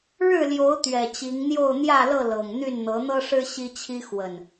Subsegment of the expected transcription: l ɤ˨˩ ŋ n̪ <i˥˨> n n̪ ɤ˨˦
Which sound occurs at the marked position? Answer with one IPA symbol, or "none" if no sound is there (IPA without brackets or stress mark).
y˥˨